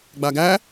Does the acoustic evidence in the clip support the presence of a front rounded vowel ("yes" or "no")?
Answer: no